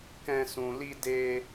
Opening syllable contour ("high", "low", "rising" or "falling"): high